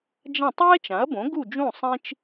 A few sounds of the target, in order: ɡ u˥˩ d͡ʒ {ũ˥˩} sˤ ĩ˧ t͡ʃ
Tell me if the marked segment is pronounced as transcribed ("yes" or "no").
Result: yes